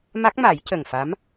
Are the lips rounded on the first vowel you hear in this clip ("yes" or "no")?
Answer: no